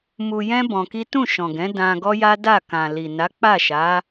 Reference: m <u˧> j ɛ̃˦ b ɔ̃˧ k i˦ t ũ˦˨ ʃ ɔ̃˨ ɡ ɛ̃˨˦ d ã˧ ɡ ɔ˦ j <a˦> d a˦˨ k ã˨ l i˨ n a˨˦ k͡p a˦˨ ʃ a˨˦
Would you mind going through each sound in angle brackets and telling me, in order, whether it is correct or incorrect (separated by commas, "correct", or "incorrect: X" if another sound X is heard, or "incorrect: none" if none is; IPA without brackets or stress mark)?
correct, correct